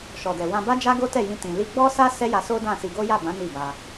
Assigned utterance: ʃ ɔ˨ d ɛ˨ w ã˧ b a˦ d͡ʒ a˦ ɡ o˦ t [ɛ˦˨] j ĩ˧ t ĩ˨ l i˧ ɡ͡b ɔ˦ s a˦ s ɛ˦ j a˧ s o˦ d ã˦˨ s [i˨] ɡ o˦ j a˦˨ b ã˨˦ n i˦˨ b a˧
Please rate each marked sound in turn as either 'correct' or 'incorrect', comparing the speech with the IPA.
correct, incorrect: i˧

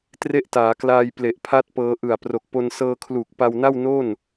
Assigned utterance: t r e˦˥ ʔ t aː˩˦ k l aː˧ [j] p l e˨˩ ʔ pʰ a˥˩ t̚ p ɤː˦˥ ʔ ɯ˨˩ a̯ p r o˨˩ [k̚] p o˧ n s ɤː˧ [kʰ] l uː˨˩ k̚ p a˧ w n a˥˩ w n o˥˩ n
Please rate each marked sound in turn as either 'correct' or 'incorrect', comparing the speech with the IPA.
correct, correct, correct

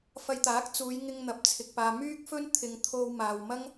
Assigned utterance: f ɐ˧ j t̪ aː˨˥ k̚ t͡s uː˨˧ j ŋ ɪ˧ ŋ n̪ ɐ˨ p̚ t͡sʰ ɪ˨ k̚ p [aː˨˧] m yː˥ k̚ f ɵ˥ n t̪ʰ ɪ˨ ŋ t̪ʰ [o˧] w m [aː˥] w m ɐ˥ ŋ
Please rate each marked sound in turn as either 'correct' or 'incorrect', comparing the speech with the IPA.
incorrect: aː˨, correct, incorrect: aː˨

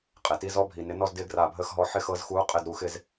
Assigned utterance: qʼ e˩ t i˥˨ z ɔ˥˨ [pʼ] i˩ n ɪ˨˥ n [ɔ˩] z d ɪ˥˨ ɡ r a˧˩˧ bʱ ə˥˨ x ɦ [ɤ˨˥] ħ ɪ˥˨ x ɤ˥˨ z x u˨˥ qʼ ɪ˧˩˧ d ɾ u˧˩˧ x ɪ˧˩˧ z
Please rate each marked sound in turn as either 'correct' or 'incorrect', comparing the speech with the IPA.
incorrect: bʱ, incorrect: ɔ˥˨, incorrect: ɔ˨˥

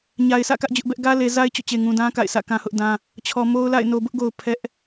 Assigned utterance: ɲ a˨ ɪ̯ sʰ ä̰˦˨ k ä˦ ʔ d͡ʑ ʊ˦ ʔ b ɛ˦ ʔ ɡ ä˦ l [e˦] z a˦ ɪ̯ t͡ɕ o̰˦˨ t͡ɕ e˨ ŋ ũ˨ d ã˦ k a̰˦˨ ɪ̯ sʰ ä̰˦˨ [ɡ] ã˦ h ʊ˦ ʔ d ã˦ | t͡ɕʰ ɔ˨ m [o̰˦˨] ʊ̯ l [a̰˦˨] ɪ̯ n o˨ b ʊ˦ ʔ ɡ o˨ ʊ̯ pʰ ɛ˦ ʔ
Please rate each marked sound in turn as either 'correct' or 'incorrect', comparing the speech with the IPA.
incorrect: e˨, incorrect: k, incorrect: o˦, correct

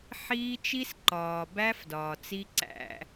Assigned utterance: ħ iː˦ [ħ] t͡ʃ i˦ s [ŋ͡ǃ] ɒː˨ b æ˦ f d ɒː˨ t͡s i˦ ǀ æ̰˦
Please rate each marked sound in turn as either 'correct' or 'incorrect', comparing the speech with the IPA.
incorrect: none, incorrect: ǃ

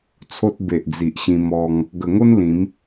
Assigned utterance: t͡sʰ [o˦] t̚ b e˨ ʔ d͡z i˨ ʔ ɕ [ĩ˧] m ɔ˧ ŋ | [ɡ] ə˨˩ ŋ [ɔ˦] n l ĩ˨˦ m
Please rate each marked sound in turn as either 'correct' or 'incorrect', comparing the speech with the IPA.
correct, correct, correct, incorrect: o˦

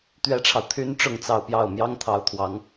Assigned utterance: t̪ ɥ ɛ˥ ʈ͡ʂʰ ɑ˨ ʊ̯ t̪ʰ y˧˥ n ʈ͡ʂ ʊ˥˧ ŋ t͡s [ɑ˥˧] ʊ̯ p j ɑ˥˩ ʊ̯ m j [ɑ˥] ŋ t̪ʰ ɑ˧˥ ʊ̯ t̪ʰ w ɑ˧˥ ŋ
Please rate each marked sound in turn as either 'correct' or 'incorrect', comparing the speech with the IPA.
correct, correct

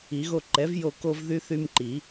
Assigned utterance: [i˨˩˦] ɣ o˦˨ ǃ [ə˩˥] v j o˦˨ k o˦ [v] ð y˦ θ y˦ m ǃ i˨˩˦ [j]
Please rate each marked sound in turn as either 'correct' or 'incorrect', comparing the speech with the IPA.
correct, incorrect: ɛ˩˥, correct, incorrect: none

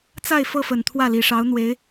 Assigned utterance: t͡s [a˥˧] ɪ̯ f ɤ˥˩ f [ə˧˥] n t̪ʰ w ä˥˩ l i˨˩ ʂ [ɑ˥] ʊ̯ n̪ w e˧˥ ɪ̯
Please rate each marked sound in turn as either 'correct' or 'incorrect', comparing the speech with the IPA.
correct, incorrect: ə˨˩, incorrect: ɑ˧˥

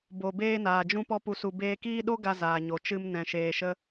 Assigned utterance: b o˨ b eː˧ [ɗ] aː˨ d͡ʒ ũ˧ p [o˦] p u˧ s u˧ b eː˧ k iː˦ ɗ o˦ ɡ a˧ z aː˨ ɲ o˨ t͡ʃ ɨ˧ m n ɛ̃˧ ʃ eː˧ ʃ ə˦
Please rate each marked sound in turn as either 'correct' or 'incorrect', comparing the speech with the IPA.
incorrect: n, incorrect: ɔ˦

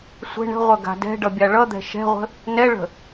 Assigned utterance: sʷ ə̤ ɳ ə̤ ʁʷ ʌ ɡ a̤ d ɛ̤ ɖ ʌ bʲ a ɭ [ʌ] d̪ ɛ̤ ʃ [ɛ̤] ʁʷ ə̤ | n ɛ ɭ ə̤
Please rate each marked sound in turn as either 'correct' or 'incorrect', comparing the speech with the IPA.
correct, correct

